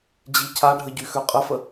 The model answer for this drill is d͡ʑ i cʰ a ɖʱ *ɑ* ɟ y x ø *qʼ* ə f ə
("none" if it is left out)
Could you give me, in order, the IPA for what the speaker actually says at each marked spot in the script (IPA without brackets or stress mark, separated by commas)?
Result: ə, qʼ